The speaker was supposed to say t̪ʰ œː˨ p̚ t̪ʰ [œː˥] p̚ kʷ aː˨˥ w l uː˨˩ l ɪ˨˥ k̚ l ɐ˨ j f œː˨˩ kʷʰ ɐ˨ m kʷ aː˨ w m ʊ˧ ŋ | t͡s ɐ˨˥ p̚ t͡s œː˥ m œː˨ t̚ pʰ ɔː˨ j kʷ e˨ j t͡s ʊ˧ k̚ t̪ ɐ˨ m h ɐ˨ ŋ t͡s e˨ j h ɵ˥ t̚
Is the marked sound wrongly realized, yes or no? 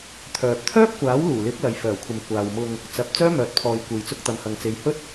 no